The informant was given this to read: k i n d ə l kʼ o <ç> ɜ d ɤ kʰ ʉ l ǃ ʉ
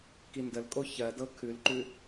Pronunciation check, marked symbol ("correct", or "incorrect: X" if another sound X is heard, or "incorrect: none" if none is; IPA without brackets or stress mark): correct